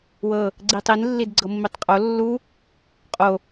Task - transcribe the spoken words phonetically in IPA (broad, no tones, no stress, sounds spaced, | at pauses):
w ɤ | ɡ͡ǀ i tˤ i n lː i d ɡ͡ǀ ɤ mː i tˤ qʼ o lː u | qʼ o